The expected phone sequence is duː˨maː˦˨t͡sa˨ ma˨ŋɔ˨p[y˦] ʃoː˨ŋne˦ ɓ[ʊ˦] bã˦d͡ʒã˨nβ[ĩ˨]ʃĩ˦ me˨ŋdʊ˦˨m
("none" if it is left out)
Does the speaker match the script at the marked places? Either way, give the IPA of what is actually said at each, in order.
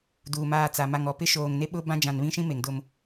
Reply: ɪ˦, ʊ˦, ĩ˦

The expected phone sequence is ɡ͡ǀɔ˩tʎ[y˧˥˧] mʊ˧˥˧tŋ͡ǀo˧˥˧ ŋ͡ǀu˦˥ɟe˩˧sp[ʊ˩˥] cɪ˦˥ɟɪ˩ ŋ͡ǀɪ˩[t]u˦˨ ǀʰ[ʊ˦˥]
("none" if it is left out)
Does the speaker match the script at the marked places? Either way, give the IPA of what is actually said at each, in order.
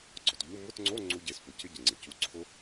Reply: u˧˥˧, ʊ˩˥, c, ʊ˦˥

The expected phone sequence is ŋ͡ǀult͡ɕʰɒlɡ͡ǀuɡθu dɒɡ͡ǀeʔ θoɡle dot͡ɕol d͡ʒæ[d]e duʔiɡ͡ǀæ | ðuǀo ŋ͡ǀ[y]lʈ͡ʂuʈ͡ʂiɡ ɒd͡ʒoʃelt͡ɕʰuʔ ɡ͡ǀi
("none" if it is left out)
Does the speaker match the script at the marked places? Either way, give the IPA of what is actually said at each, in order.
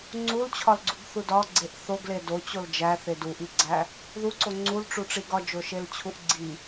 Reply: θ, u

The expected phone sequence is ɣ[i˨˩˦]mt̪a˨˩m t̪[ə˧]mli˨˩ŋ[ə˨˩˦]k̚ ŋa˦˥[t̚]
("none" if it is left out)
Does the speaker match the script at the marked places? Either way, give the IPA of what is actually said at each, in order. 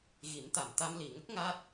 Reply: i˨˩˦, a˧, ə˦˥, t̚

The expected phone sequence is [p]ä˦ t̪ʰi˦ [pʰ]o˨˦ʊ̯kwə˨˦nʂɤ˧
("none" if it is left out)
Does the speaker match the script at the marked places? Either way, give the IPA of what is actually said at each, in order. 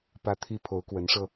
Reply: p, pʰ

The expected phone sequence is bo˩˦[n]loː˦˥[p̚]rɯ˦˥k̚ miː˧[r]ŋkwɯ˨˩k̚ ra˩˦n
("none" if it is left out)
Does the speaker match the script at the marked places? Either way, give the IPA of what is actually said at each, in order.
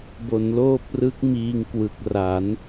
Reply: n, p̚, none

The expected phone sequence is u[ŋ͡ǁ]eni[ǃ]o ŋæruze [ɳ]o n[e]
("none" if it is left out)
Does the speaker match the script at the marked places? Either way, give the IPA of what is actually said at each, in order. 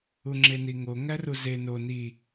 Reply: ŋ͡ǁ, ŋ, n, i

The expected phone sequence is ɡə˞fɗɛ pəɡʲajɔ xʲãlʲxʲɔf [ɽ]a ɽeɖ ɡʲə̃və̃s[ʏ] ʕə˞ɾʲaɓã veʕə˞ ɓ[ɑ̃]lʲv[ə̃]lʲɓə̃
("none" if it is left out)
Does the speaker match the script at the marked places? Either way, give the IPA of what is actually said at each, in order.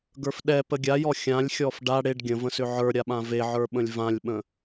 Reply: ɖ, ʏ, ə̃, ã

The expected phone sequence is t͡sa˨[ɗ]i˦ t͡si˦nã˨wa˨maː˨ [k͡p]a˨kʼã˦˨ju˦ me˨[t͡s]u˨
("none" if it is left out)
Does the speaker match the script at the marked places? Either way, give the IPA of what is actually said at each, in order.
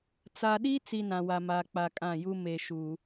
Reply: ɗ, k͡p, ʃ

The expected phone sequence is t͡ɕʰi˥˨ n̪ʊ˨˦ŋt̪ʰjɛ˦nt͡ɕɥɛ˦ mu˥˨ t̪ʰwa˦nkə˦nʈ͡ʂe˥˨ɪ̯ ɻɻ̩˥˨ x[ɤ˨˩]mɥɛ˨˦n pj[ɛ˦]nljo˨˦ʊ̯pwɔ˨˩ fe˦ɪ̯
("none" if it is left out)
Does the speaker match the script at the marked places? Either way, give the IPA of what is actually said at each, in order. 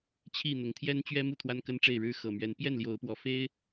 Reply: ɤ˨˩, ɛ˥˨

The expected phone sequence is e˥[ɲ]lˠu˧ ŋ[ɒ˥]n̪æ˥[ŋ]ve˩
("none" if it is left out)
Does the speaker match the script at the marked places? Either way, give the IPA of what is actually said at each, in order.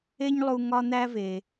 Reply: ɲ, ɒ˥, none

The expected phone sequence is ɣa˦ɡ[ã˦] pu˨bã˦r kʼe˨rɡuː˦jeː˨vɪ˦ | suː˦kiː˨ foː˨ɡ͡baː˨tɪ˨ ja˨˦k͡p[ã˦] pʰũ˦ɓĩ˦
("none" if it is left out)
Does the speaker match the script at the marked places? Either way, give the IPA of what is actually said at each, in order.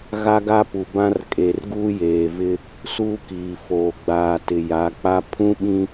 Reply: a˦, a˦

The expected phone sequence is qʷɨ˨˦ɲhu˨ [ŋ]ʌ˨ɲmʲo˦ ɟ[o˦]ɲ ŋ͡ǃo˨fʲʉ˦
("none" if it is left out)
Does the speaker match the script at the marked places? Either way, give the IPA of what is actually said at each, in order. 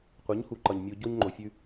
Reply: ǃ, o˦

